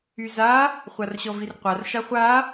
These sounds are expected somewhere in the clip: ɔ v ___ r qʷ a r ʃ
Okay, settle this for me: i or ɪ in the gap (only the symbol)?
i